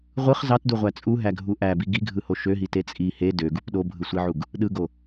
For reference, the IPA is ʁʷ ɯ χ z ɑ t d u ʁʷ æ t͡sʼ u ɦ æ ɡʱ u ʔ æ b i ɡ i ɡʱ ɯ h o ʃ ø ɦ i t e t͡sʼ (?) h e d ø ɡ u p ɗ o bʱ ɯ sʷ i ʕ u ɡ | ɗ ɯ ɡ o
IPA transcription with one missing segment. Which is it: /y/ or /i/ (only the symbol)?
i